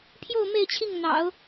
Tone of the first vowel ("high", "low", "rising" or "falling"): falling